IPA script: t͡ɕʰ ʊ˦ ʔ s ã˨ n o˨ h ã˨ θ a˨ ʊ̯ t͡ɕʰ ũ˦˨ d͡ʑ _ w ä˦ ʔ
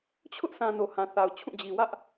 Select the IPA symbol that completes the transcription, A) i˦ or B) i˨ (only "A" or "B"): B